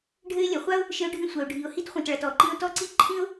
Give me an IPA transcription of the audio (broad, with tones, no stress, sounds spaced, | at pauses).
ɖʱ ɘ˥ ɪ̯ lʲ ɐ˩ χʷ a˥ ʊ̯ | ʃ ɘ˥ ʊ̯ ɖʱ ĩ˥ sʷ ɐ˩ ʊ̯ ɖʱ i˩ ʊ̯ h i˥ t χʷ ĩ˩ t ɭ ɐ˩ t ɔ˩ ǃ ĩ˥ ʊ̯ t ɔ˥ ǀ i˥ ǃʰ ĩ˥ ʊ̯